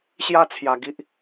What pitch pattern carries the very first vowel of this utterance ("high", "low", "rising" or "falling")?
high